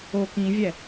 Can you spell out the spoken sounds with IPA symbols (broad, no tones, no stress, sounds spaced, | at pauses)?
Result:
o k ĩ vʲ ɛ